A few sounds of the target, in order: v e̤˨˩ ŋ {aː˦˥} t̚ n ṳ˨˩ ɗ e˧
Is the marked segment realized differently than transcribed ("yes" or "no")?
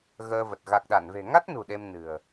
yes